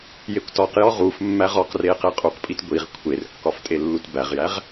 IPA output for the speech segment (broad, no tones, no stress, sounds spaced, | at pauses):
j e kʷ t ɒ q j ɒ ʁ u f mː æ ʁ ɒ q r e q e qʼ u q pʼ i t ɡʷ i ʁ kʷʰ e r kː ɒ f tʼ e lː u t b æ ʁ j æ ʁ